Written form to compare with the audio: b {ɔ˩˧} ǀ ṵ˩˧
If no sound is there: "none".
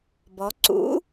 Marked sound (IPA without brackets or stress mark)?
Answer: ɔ˩˧